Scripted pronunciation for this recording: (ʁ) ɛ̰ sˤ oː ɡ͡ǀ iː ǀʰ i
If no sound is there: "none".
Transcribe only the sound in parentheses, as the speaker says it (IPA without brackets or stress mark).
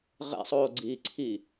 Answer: ʁ